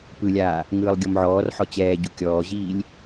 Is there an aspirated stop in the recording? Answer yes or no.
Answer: no